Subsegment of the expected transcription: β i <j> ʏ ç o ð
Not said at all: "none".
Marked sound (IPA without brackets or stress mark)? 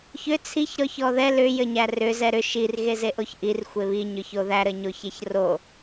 ɲ